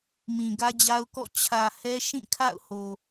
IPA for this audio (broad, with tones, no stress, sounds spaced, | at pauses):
m ĩ˨ ɡ ä˦ d͡ʑ a˦ ʊ̯ k ɔ̰˦˨ t͡ɕʰ ä˨ h ɛ˦ ʃ ĩ˦˨ kʰ a̰˦˨ ʊ̯ h o˨